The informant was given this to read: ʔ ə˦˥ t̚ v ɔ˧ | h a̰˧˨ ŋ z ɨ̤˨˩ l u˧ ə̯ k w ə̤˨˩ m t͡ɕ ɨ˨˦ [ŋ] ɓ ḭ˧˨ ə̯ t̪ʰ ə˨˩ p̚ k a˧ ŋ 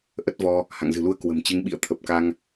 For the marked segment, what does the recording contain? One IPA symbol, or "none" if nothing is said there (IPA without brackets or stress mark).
ŋ